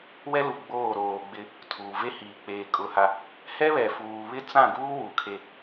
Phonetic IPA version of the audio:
wɛ˦lu˨ɡ͡boː˦˨ ɾoː˨ɡ͡bɪ˦ | tʰuː˨ ve˦hiː˨ k͡peː˨ kʼʊ˦ha˦ | hɛ˦βɛ˨fuː˨βɪ˦ t͡sã˦˨ɡuː˦ wu˨kʰe˦

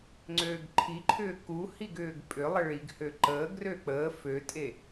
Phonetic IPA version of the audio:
ŋ͡ǀøːɡǃʰiǃʰʏː kuhiɡ ʏːɡpʼʏlˠə ɭiɡ høǃəːɡrø k͡pəː føtʼe

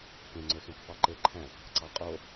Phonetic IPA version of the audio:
kẽŋ͡ǀøxẽkfɑ ǃeǃʰæ̃k | ǀɑqʼo

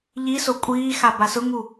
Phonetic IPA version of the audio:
ʎiso kʷʼiːxa basʊŋu

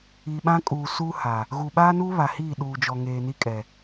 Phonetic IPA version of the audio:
i˨ɓã˦kʼuː˨ suː˦ha˨ | ɣu˨ ɓaː˦nuː˦ βa˨hiː˦˨ ɗuː˨d͡ʒɔ˨ ŋeː˨ni˦kʼɛ˨

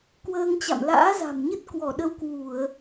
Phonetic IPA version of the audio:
kwəː˧ŋt͡ɕa̰˧˨m la̰ː˧˥za̤˨˩mɲə˦˥t̚ kwɔ˧˩ɗə˧w kwu˧˩˨ə̯

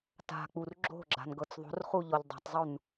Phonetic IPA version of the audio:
ta̤k͡pur ɡ͡ǁo̤ɡ͡ǁa̤nɡɤt͡s ðˤo̤rχuʎɔʎ dˤa̤tˤzˤun

